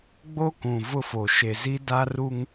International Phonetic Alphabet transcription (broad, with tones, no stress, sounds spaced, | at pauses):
ɡ͡b o˦ k ũ˨ v ʊ˦ f o˨ ʃ e˨ z i˦ d a˦ r u˦ ŋ